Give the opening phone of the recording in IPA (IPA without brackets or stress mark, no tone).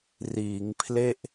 r